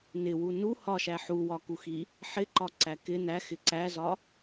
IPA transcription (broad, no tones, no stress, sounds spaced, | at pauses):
n ɪ w u n u h ɒ ʃ æ ħ u w ɒ k u x i | ħ ɪ ǃ ɒ ǀ æ k ɪ n æ x ɪ ǀ æ z ɒ